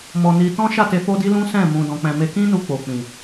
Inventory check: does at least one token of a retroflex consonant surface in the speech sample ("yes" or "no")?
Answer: no